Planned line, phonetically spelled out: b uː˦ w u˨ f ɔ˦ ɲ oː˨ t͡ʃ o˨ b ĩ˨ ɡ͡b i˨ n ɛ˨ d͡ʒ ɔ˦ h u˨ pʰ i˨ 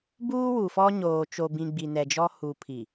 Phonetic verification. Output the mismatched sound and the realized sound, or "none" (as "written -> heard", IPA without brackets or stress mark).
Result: none